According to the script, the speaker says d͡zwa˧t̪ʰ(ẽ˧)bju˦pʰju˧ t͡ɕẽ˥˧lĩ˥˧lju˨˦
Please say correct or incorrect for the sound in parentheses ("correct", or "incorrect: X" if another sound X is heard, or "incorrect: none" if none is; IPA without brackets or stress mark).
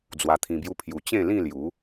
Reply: incorrect: ĩ˧